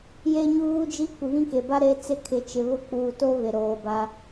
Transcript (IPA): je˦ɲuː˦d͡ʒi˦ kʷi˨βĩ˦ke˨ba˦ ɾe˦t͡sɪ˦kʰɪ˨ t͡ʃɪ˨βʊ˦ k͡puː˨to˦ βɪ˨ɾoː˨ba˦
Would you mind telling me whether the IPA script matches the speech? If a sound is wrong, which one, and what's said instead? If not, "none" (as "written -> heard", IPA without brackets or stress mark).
none